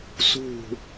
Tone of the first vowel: falling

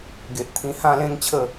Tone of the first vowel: low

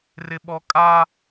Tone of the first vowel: high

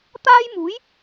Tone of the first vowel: high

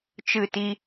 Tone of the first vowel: falling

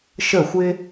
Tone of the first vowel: falling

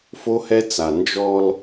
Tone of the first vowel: high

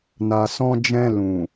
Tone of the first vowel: low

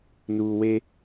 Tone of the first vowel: low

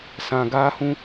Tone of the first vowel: low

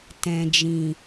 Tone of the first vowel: low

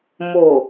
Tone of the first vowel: low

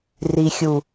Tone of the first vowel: low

